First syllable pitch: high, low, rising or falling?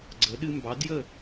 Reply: rising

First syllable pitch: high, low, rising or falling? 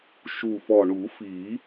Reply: low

